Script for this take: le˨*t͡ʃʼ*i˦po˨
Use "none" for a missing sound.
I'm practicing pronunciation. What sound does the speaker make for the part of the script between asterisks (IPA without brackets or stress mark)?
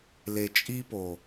t͡ʃʼ